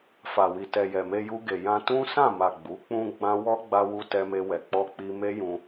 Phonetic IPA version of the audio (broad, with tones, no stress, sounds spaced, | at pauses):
f a˨ w i˨ t ɛ˨ j ɛ˨ m e˧ j u˧ ɡ e˨ j ã˧ t ũ˦ s ã˦˨ m a˨ ɡ͡b u˨˦ k͡p ũ˧ ɡ͡b ã˧ w ɔ˦ ɡ͡b a˧ w u˧ t ɛ˧ m e˧ w ɛ˨ k͡p ɔ˧ k͡p i˧ m e˦ j ũ˧